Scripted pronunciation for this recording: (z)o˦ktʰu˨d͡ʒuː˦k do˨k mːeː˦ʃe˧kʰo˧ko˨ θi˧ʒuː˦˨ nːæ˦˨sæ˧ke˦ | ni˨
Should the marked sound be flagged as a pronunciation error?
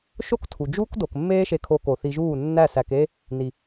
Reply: yes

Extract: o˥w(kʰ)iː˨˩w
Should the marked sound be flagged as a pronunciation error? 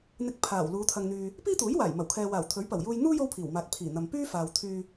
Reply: yes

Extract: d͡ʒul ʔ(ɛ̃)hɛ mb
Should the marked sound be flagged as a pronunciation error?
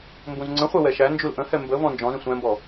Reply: yes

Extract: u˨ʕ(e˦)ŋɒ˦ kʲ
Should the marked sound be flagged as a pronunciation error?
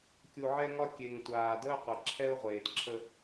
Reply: yes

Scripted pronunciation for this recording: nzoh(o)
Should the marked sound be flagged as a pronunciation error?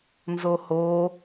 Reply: no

